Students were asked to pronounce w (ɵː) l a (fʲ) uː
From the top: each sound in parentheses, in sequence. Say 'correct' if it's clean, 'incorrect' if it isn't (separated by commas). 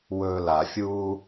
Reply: correct, correct